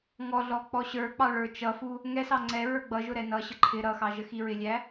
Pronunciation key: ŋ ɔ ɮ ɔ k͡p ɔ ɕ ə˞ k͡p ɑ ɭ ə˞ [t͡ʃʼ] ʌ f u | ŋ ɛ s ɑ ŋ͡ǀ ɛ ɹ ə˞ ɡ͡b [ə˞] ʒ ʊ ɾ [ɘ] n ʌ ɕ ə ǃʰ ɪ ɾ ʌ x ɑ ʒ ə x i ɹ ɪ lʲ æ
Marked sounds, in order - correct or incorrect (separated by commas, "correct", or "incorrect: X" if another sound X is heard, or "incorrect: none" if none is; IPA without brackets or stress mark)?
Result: incorrect: t͡ʃ, incorrect: ʌ, incorrect: ɛ